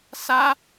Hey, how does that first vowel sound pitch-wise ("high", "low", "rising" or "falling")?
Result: high